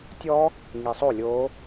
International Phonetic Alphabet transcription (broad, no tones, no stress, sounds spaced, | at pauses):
tʲ ɔ | ŋ i sˤ o lʲ o